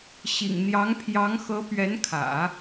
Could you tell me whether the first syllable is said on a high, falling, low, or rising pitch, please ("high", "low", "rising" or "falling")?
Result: low